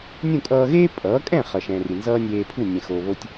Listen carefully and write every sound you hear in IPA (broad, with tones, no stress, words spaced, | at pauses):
nʲũ˥˩kʼʌː˧ɣeː˥ pʼʌː˩˥kʼɛ̃˥˩ χʌ˩ʃɛ̃˩ ri˩nzʌː˥nʲeː˧ pʰu˥˩ nʲɛ̃˩xoː˩βo˧tʲ